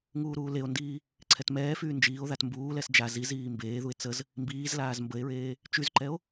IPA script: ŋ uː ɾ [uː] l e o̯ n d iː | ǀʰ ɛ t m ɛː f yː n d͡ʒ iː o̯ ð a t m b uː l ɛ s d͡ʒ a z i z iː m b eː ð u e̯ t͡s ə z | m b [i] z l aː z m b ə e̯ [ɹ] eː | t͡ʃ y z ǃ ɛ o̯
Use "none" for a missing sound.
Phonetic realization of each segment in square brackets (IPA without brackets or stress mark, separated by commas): uː, iː, ɹ